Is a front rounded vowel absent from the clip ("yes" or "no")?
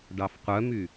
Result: no